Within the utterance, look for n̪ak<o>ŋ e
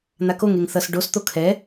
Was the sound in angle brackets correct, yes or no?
yes